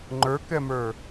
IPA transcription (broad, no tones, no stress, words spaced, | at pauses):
ŋ͡ǃə˞kɛmə˞